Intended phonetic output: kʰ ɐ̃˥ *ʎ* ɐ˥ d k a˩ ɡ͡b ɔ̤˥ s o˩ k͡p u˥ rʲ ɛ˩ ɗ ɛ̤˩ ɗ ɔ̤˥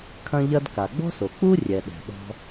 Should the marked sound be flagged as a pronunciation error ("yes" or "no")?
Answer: no